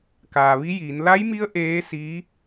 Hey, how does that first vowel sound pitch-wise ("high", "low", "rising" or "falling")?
low